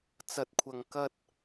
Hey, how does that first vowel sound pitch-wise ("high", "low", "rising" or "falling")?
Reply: low